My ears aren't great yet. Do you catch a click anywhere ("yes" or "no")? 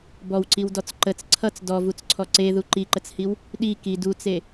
yes